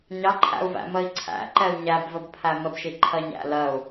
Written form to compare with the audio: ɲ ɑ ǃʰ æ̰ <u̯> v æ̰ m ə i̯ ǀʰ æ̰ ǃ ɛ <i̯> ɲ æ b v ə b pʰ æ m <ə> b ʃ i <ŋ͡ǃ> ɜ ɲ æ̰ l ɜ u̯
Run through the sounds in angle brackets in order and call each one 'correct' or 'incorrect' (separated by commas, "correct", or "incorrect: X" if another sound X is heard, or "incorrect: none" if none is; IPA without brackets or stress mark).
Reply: correct, incorrect: u̯, correct, incorrect: ǃʰ